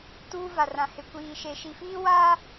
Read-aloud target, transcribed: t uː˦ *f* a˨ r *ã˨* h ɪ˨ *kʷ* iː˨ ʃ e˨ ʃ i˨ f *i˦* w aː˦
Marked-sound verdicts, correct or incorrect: incorrect, correct, correct, incorrect

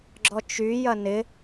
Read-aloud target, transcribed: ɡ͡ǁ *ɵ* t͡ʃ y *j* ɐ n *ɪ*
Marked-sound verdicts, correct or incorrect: incorrect, correct, correct

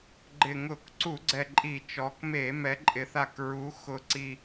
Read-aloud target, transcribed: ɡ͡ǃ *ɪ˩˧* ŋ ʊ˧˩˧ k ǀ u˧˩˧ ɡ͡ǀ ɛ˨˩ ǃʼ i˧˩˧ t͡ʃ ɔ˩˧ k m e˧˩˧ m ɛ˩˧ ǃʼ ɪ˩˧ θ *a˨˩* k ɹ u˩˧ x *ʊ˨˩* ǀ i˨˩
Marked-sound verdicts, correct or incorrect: incorrect, correct, correct

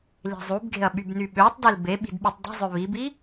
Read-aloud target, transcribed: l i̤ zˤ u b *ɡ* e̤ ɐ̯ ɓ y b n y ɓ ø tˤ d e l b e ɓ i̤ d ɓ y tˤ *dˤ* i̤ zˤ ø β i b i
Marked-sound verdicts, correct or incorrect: correct, correct

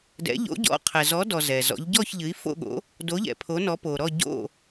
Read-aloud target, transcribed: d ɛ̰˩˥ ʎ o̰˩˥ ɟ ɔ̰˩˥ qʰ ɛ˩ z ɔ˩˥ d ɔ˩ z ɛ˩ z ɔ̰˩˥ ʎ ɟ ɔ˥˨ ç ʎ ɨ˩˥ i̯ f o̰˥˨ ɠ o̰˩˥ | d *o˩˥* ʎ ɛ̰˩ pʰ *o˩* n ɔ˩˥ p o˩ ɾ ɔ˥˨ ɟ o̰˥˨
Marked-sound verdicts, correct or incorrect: correct, incorrect

